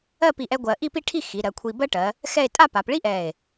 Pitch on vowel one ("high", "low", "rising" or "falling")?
falling